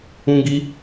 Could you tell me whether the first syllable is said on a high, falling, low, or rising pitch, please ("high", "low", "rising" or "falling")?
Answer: high